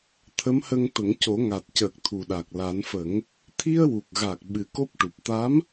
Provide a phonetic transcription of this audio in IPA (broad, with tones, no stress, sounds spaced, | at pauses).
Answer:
t̪ʰ ə˧˥ m h ə˧ ŋ t̪ ə˨˩˦ ŋ c o˨˩˦ ŋ a˨˩ t̚ c əː˨˩ k̚ t̪ʰ u˨˩ ɗ a˨˩ k̚ l a˨˩˦ n f ə˨˩˦ ŋ | t̪ʰ i˧ ə̯ w u˨˩ k̚ ɣ a˨˩ k̚ ɓ ɨ˨˩ k o˦˥ p̚ ʈ u˨˩ p̚ t̪ a˧˥ m